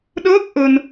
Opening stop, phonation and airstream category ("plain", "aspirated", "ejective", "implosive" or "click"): implosive